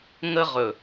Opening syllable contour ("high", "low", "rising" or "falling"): high